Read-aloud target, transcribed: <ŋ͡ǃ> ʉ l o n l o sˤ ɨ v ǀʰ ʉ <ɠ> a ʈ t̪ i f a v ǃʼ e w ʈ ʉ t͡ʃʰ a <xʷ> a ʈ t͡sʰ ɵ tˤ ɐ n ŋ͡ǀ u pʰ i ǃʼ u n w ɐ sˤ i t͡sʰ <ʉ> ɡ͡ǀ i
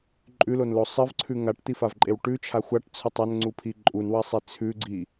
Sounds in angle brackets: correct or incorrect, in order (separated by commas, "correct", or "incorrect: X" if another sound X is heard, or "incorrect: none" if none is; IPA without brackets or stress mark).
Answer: incorrect: ǃʼ, incorrect: ŋ, correct, correct